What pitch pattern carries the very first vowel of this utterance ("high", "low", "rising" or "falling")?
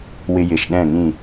high